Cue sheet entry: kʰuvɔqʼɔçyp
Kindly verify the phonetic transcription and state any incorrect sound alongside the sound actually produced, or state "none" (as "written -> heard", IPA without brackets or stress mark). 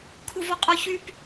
none